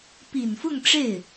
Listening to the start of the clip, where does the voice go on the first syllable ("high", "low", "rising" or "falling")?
low